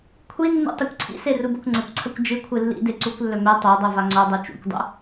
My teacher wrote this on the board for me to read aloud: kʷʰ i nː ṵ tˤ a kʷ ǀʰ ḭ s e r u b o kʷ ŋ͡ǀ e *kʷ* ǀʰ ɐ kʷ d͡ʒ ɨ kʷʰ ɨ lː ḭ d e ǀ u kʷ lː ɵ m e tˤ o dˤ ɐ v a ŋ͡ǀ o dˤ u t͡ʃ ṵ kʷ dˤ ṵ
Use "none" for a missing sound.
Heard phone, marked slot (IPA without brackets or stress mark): kʷ